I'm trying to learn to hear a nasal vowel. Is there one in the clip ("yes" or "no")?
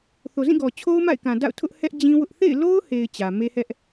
yes